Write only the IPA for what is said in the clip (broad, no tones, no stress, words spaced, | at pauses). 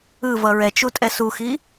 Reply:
ɯvʌ ɹɛt͡ʃu tʼɛsuxi